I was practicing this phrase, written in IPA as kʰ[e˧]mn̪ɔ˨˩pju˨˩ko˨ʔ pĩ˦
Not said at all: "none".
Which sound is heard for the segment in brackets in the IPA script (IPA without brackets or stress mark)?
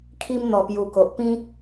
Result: i˧